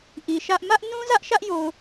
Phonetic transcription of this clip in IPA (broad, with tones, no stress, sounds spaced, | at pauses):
ʔ i˨ ʃ ä˦ ʔ m ä˦ ʔ n ũ˦ z ä˦ ʔ ʃ ä˦ ʔ j o˨ ʊ̯